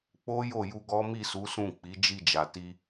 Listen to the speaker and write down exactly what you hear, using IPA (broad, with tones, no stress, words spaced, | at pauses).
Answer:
k͡po˦ jo˦˨ju˧ɡɔ˦ mi˦˨su˨˦sũ˦˨ k͡pi˨˦ d͡ʒi˦˨d͡ʒa˨ ti˧